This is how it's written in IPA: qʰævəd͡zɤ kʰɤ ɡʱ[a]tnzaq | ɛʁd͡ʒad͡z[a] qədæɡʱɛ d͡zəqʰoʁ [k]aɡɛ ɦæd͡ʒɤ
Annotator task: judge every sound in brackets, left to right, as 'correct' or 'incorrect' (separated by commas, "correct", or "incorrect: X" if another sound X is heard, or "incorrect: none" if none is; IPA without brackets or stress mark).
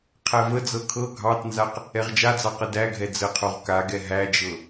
incorrect: ɑ, incorrect: ɑ, correct